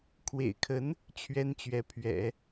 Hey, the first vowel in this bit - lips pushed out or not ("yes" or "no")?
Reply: no